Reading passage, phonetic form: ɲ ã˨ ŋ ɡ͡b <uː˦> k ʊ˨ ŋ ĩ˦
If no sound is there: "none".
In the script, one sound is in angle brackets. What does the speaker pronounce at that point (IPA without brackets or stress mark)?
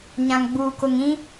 uː˨